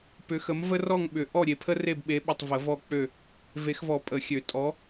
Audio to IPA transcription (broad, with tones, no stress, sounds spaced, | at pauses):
p ʏ˨˥ x ə˨˥ m v ə˥ r ɔ˥˨ ŋ ɓ ʏ˨˩˦ ʔ ɔ˥˨ ɾʲ e˨ pʰ ə˥ r e˥˨ b ɓ e˨˥ ɓ ʏ˨ tˤ v ə˨˩˦ v ɔ˥˨ k͡p ø˥˨ | v e˨˩˦ x v ɔ˨˩˦ pʼ ə˨˩˦ xʲ ø˨˩˦ tʼ ɔ˨˥